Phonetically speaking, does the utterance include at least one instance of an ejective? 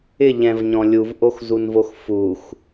no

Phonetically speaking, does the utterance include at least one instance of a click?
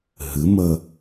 no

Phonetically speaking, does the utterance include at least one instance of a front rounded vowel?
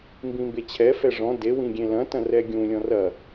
no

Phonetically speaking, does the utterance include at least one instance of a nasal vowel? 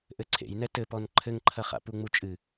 no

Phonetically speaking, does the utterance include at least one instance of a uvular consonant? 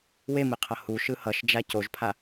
yes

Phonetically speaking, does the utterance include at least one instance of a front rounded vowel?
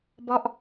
no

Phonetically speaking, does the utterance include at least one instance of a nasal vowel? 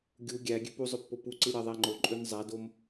no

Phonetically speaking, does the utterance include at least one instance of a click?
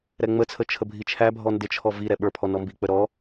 no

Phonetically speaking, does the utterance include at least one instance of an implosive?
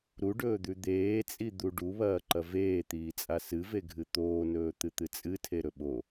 yes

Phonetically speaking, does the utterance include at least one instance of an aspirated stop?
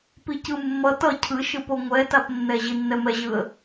yes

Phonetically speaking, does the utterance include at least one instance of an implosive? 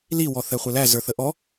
no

